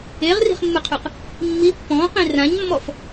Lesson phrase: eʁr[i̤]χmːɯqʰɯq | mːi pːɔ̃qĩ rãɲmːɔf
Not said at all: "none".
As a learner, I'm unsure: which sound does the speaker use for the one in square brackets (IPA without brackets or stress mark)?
i̤